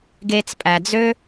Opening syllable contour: low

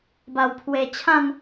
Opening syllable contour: low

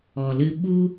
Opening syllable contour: low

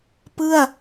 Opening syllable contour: falling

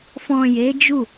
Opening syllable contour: low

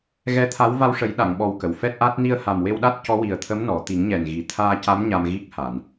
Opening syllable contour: rising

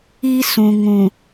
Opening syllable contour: high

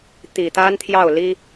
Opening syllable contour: low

